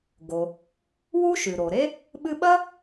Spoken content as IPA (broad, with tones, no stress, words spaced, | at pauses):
ɡo˩ | wu˥ʃʉ˩ɾo˩ɾe˥ | ɓɨ˥ ɓɐ˥